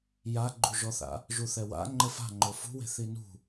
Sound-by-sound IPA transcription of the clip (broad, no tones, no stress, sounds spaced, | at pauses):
j a ɡ͡ǃ u ʒ ɔ θ a̰ | ʒ u θ ɛ w a̰ ŋ͡ǃ ɘ f a̤ ŋ͡ǃ o f ṳ w e̤ θ i n ṳ